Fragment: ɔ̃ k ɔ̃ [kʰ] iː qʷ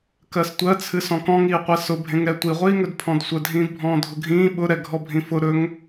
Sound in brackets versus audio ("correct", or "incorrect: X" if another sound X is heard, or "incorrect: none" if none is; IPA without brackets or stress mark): incorrect: ŋ